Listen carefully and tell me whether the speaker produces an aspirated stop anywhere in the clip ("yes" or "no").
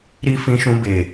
no